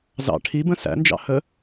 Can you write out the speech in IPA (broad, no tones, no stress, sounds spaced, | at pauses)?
z ɑ̰ ʈʰ i b ə̃ s æ̰ n d͡ʒ ɑ̰ h ə